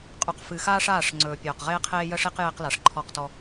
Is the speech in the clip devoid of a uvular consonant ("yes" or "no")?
no